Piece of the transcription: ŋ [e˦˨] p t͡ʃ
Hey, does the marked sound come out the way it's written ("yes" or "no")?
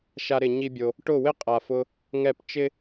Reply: no